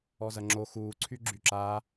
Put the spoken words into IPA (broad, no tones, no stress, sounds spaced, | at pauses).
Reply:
ɔ z ɐ ŋ͡ǁ o x uː ǀʰ y ɡ͡ǁ y ǁ aː